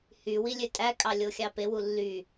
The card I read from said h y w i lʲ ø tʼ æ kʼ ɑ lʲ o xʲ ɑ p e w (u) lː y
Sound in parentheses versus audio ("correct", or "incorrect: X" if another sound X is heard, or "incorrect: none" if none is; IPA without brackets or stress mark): correct